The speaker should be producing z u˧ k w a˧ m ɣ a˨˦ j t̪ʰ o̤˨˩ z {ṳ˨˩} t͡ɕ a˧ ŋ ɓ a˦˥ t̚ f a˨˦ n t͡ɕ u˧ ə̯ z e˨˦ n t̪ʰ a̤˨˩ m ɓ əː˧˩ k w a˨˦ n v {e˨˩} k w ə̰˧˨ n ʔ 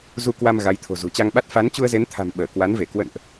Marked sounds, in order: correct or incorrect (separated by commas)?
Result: correct, incorrect